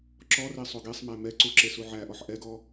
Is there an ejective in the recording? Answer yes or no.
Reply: no